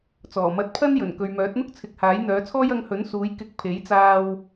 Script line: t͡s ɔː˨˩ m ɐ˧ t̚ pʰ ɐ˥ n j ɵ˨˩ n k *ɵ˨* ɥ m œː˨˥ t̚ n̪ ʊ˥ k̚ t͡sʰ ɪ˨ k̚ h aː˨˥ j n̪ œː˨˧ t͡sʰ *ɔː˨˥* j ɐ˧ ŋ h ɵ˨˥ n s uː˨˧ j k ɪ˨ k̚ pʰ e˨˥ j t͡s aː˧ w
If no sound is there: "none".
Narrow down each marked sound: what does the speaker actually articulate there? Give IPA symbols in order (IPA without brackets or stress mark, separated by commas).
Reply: ɵ˨, ɔː˥